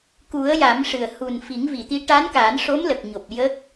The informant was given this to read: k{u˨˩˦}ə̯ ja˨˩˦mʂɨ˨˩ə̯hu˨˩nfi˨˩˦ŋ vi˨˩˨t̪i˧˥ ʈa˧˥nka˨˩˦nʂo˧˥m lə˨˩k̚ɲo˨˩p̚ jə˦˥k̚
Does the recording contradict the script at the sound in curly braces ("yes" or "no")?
no